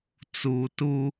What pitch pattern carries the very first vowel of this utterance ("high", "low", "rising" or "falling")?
low